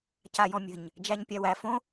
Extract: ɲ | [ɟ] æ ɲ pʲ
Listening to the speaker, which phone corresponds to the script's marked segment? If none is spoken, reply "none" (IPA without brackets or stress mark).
d͡ʒ